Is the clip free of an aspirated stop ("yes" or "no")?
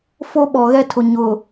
no